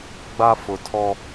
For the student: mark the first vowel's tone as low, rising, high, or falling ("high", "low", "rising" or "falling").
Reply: high